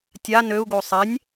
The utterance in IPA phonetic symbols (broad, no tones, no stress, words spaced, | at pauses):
tʲa nøu̯ɡo sˤenʲ